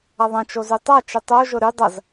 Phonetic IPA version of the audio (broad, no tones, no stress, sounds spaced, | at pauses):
ɐ ðˤ ɐ̃ t͡ʃ o z y tˤ a t͡ʃ i tˤ o ʒ ʊ ɾ y dˤ ɐ z